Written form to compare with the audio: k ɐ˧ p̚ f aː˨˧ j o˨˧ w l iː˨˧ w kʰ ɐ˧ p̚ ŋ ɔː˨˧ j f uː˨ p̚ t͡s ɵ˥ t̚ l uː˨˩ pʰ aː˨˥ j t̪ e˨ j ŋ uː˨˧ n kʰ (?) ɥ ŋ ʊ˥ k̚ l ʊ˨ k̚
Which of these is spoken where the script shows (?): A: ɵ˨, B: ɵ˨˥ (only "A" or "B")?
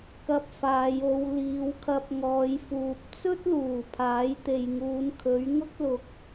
B